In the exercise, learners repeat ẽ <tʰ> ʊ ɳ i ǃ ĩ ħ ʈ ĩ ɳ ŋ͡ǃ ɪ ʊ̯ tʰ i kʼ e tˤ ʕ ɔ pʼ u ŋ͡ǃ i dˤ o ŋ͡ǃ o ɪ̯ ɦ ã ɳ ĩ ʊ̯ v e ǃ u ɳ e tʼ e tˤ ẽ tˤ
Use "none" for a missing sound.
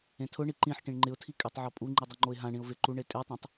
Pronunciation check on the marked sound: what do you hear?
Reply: tʰ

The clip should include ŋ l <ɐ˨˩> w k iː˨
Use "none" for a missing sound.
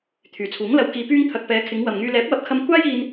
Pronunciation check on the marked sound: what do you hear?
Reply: ɐ˧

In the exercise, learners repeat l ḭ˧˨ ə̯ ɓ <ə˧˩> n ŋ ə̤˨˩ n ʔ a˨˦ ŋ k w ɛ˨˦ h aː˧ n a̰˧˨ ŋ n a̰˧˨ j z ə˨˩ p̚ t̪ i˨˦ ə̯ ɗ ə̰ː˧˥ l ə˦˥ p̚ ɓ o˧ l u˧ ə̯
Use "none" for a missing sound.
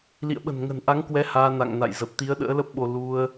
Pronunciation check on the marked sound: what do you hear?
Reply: ə̤˨˩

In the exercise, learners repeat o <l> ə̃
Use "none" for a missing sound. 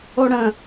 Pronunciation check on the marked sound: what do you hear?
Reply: ɽ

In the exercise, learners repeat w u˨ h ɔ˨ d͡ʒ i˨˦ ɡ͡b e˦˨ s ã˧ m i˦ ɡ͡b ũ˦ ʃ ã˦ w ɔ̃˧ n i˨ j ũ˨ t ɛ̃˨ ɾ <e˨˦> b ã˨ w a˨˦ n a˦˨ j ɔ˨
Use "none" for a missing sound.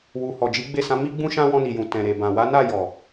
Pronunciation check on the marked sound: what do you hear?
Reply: e˨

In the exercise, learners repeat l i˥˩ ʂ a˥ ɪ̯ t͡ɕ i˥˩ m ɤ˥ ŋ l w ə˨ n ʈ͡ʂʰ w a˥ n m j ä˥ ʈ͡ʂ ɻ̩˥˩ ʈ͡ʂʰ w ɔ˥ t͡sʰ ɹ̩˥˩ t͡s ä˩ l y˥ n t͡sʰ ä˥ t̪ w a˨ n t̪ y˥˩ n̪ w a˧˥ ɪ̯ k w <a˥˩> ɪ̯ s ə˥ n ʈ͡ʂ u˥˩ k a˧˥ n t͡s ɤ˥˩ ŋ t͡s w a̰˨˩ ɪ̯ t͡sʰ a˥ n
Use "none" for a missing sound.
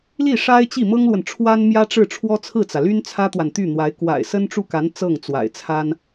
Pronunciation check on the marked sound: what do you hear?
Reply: a̰˨˩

